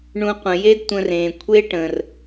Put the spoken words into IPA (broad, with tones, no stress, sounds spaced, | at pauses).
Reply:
ɳ ũ˨ qʷ ə̃˩ j e˦ d tʷ ə̃˨ r ẽ˩ kʷʰ e˦ ʈ ə̃˩ r